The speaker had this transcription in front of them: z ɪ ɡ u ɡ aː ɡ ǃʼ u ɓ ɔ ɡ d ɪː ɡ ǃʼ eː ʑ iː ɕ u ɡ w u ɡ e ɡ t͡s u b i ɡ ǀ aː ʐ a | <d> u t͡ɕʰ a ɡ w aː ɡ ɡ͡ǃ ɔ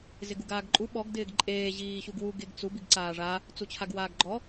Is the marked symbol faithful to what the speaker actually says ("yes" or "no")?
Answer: no